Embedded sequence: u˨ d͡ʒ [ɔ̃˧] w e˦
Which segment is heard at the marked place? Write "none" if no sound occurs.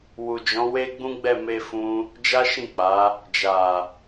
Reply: ɔ̃˨˦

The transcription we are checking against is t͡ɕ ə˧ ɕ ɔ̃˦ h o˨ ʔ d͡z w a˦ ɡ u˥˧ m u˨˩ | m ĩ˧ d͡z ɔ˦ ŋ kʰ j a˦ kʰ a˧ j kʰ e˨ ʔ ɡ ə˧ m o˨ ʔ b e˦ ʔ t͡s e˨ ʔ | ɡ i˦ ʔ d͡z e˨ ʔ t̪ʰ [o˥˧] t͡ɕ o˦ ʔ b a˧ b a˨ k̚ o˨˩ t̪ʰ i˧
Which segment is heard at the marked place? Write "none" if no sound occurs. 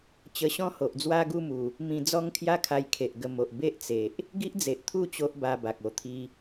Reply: u˥˧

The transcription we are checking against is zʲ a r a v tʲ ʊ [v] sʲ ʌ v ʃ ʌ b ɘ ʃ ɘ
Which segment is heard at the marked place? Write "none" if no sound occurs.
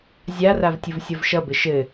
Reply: v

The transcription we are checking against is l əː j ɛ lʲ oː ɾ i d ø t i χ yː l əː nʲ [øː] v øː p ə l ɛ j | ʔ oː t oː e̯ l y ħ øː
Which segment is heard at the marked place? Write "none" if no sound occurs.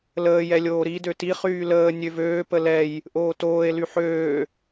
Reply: ø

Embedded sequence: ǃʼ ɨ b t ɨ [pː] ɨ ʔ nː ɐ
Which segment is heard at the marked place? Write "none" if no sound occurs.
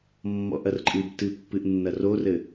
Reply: pː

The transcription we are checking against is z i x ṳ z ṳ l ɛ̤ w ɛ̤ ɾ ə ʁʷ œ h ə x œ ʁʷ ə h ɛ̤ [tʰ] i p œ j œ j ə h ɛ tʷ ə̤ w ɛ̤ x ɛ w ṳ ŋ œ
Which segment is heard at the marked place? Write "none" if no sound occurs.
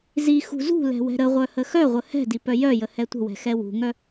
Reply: d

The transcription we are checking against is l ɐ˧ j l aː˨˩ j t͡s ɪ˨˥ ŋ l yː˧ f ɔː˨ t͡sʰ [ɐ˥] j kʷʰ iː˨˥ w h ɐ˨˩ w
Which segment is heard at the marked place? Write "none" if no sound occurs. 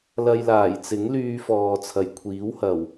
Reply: ɐ˨˩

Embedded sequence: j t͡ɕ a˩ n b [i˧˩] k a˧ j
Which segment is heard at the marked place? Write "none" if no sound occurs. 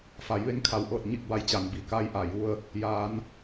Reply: i˩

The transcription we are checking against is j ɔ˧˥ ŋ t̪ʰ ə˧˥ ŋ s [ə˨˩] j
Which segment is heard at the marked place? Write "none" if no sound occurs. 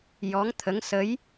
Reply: ə˧˥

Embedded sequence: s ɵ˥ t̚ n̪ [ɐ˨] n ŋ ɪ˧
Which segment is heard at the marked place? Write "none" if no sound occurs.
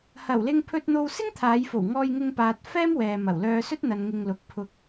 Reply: ɐ˨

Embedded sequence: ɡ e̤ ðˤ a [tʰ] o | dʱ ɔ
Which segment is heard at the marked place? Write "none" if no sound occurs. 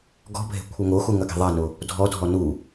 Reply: n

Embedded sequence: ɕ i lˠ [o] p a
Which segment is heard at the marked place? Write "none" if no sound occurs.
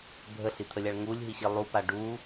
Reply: u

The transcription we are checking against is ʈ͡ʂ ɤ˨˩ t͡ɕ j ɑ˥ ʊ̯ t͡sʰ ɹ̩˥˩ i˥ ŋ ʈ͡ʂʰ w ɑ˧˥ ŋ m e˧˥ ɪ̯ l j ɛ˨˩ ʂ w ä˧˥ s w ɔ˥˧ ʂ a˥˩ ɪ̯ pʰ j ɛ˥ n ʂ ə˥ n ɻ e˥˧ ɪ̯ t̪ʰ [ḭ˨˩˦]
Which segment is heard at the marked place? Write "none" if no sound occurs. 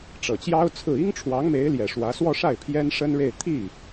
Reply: i˥˩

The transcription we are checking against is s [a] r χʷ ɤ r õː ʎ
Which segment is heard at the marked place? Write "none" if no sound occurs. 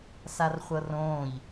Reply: a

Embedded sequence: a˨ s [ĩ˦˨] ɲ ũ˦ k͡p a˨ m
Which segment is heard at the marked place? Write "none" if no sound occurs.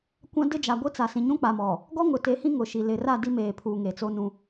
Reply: ĩ˨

